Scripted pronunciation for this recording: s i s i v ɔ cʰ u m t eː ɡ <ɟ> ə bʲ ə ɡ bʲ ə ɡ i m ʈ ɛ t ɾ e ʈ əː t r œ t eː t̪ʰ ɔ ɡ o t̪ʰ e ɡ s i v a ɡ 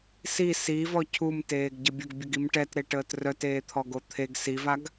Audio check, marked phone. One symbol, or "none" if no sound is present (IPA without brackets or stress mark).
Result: ɟ